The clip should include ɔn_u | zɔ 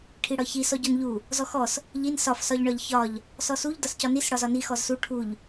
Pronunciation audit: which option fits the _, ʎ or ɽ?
ʎ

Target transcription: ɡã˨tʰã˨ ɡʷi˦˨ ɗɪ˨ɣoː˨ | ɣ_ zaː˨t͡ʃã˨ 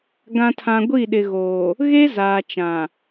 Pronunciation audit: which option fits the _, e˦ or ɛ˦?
e˦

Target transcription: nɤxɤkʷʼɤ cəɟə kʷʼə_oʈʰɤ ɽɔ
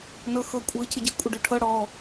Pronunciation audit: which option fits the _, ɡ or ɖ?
ɖ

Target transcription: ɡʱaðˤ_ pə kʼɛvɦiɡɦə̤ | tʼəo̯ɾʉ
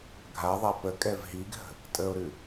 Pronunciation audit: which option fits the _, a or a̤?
a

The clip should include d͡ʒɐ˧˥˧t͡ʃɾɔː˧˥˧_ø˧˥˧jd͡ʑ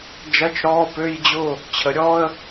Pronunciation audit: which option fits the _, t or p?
p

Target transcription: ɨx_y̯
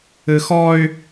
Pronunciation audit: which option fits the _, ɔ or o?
ɔ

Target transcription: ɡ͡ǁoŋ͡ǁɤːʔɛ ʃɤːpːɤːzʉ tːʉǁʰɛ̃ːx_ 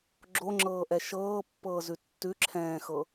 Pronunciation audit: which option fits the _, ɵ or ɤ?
ɤ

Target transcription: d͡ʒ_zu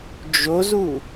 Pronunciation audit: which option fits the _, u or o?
o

